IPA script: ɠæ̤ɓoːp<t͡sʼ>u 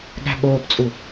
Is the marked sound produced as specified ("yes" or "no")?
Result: yes